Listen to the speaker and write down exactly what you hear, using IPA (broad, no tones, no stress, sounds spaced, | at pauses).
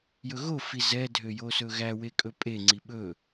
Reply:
j ɵ ɣ o f i z ɛ dʱ ø j o s ɵ ɣ æ w e kʼ ɵ pʼ e ŋ͡ǀ i ɓ ɵ